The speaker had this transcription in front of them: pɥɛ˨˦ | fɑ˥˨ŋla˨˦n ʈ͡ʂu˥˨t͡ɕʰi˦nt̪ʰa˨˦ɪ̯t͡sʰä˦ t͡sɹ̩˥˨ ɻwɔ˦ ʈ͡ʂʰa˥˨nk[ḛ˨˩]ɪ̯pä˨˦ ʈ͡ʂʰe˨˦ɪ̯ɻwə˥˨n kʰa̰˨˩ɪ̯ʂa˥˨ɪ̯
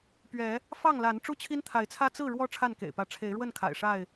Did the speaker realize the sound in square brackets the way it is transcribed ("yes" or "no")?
yes